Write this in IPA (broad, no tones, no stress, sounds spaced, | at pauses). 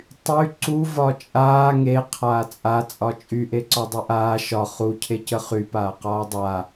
tˤ y ǀ u v ɒ t͡ʃʼ aː ŋ e qʰ aː t͡sʼ a t͡sʼ ɒ t͡ʃʼ y ʔ e ǀ ɒ dˤ y ʔ aː ʃ ɒ χ u cʰ e c ə χ y p aː q ɒː dˤ a